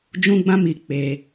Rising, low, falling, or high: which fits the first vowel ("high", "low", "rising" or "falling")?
high